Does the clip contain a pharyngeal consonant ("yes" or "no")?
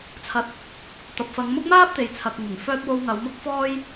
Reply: no